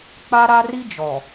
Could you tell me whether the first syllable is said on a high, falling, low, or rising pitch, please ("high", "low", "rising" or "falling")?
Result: high